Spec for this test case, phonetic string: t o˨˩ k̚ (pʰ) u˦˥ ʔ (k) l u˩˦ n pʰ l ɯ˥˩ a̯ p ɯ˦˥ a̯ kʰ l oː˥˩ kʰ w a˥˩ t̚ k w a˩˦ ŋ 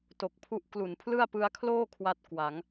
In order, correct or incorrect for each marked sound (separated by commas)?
correct, correct